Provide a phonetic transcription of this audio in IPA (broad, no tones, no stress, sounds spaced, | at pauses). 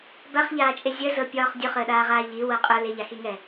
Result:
b a χ ʎ aː t͡ʃʼ e zʲ ə z ɤ pʲ ɒː χ dʲ ʊ χ əː ɗ aː ʁ aː ʎ i w ɤ qʼ ʊ l e ʎ a x i ŋ ɛ